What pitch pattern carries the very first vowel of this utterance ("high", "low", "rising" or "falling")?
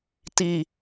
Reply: low